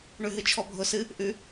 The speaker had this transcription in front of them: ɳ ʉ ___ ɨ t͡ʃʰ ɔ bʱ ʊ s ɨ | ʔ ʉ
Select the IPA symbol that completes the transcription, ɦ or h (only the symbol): ɦ